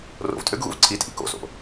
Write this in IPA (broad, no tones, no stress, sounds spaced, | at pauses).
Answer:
r o̰ v tʼ ø ɡ ɣ ṵ v ǀʰ i tʼ ḭ k o̰ s o̰